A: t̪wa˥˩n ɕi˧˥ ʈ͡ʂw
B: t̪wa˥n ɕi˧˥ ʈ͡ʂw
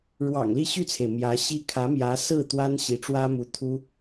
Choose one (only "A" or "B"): B